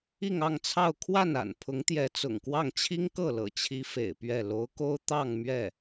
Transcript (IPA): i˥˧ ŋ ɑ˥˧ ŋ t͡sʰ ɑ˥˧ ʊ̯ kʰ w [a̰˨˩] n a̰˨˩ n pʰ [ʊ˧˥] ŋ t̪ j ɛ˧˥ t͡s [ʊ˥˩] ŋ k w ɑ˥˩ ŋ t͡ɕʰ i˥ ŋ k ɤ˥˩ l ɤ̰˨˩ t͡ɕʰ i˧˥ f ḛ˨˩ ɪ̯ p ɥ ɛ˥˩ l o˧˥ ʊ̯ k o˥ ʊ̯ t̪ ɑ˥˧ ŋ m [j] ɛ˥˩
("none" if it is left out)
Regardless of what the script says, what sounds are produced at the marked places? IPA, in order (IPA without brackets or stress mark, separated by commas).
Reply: a˥˩, ʊ˧˥, ʊ̰˨˩, ɥ